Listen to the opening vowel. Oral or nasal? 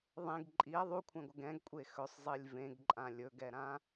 nasal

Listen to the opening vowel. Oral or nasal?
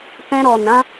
nasal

